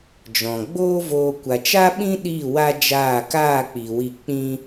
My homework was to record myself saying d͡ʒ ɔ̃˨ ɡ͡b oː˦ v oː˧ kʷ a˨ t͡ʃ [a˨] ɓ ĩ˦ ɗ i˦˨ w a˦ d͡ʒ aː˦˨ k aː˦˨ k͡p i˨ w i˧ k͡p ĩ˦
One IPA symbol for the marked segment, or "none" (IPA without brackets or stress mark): a˦